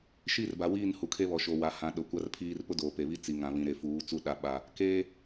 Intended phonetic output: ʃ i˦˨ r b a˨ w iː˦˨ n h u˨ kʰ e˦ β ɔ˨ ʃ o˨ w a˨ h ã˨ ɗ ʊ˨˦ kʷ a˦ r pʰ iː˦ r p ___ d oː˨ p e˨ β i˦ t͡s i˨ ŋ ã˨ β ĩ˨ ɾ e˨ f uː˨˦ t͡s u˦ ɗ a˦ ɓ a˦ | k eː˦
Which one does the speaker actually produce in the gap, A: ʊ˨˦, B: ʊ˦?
B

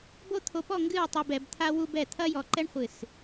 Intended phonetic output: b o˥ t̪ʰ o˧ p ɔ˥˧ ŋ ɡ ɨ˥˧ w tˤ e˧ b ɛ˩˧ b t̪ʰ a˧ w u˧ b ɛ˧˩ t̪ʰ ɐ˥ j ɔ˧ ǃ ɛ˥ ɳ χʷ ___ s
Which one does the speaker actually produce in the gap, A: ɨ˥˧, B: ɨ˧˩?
B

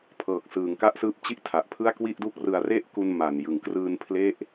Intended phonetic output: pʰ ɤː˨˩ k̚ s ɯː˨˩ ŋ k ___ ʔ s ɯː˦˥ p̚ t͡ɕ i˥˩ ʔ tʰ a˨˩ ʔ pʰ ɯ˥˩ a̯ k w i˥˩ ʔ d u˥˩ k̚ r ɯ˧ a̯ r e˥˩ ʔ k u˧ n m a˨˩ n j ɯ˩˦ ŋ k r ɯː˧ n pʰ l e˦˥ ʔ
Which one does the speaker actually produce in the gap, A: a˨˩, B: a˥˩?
B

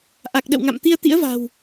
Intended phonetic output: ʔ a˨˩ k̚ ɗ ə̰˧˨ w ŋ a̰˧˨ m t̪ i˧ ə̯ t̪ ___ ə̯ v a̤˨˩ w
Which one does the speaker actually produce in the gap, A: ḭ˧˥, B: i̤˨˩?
A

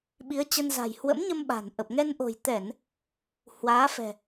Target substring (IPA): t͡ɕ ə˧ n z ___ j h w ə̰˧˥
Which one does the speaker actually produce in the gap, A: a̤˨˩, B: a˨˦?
A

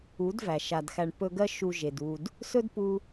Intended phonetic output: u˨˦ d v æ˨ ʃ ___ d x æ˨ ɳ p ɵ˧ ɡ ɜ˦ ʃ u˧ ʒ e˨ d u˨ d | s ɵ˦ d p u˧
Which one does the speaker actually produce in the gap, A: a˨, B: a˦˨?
A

